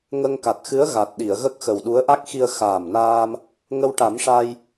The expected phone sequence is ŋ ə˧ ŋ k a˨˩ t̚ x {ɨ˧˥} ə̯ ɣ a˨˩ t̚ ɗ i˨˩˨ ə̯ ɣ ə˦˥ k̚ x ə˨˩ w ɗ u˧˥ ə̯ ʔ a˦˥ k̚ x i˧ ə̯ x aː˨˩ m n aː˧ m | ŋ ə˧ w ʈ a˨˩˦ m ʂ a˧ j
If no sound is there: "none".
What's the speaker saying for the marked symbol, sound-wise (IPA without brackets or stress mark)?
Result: ɨ˧˥